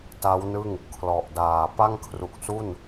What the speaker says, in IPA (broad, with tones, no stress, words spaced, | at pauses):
ta˦˥wnɯ˥˩ŋ | kʰlɔ˨˩ʔdaː˨˩ pa˥˩ŋkʰru˨˩k̚su˥˩n